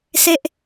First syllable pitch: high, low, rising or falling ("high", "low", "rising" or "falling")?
falling